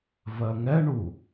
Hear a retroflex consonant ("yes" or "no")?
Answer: yes